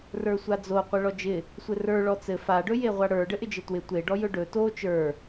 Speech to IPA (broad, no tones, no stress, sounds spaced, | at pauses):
r ə˞ sʷ a d͡z o qʷ ɛ ɭ ɔ d͡ʒ ɪ | sʷ ɘ r ə˞ ɭ ɔ t͡s ɘ f a ɖ ɵ j e ʁʷ a ɽ ə˞ ɖ ɘ ʔ ɪ d͡ʒ ɘ t w ɪ tʷ e ɖ ɔ j ɵ ɖ ɵ t o t͡ʃ ə˞